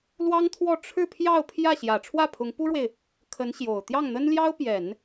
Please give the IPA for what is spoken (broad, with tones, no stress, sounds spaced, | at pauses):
l w ɑ˥ ŋ t̪ʰ w ɔ˥˧ ʈ͡ʂʰ ɻ̩˥˧ pʰ j ɑ˥˧ ʊ̯ pʰ j ä˥˩ ɕ j ä˨˩ ʈ͡ʂʰ w ä˥˩ pʰ ʊ˧˥ ŋ p u˥ ɻ w e˨ ɪ̯ | kʰ ə˧˥ n ɕ j o˨˩ ʊ̯ t̪ j ɑ˥˩ ŋ n̪ ə˥ n l j ɑ˥ ʊ̯ p j ɛ˨˩˦ n